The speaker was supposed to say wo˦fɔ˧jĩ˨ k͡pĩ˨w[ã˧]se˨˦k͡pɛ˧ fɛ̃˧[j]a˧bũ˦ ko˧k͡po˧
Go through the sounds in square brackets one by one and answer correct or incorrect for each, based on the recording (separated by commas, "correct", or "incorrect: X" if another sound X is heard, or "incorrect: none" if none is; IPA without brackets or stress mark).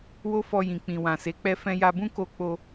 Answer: incorrect: ã˨, correct